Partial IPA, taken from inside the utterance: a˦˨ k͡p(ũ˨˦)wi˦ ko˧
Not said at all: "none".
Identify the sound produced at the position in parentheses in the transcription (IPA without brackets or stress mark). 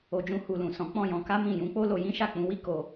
ũ˨˦